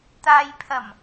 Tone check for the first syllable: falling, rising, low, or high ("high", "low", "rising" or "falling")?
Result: low